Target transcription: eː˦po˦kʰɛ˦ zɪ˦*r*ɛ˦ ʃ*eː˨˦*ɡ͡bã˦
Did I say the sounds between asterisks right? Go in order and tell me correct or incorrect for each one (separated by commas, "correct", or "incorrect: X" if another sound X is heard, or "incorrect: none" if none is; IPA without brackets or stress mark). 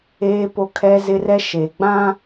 correct, incorrect: eː˨